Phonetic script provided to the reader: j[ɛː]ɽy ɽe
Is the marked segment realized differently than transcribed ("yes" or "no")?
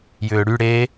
yes